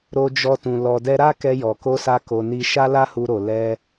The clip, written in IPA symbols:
ɾo˧d͡ʒɔ˧tũ˨ lɔ˨dɛ˧ɾa˦ kɛ˧jɔ˨ko˧sa˧ ko˧ni˦ ʃa˦la˦hu˧ɾo˨ lɛ˧

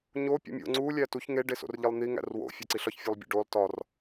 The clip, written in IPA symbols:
ɲo pʲo̰mʲo̰ ŋ͡ǀu lʲætuç ŋe ɖeso̰rʎilˠn̪i ŋæ̰rwo̰ fʲæǀiɬɒç fʲolˠbʲo̰ɖolˠ tɒr

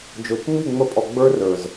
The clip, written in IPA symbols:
d͡ʒo˨t͡ʃŋ͡mi˦˨ŋ͡mə˧pʼɔ˨ ɡ͡bə˞˦rə˞˨z

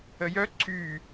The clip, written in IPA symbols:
əjœ ǀy

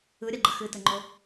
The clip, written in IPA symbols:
ɯɾʲaɡ͡ǃə xɨtɘŋ͡ǃo

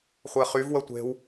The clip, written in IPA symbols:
χʷɛχyv wətʷe̤w

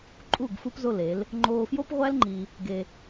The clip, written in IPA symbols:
ǃʼu˦˨ɡ fu˦pzo˦˨le˨˦l | ŋ͡ǃoː˧fjo˦pʁʷæ˦l ŋ͡ǃi˧ | ɡe˧

